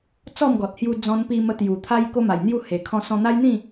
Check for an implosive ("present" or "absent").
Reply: absent